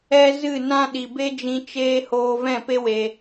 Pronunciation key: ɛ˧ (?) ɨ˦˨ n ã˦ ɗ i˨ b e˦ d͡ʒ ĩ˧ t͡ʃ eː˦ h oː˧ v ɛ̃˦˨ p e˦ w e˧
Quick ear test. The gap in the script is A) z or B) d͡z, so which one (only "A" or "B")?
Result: A